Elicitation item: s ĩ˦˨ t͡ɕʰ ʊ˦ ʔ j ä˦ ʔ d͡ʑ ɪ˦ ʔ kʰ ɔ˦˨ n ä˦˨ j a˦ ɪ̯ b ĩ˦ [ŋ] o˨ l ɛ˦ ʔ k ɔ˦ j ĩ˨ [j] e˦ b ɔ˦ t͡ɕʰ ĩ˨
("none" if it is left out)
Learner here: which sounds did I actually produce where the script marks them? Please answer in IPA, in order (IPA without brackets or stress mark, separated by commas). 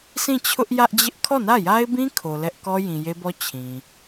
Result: kʰ, j